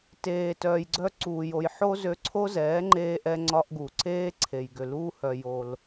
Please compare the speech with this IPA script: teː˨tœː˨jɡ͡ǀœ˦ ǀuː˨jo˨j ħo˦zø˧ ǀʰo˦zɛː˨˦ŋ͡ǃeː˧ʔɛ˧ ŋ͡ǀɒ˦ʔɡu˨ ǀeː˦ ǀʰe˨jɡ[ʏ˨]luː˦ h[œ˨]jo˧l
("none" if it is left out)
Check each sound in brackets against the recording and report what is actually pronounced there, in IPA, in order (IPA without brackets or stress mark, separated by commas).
ʏ˨, œ˧